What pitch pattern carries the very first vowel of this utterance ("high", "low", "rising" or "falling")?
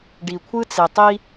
low